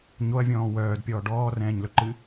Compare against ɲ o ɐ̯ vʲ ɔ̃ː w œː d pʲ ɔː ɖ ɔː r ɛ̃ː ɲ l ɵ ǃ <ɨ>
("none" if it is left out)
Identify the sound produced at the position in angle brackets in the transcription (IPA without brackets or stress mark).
ɨ